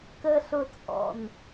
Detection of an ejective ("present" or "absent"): present